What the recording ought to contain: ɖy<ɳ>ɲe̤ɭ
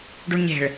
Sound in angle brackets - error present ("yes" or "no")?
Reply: no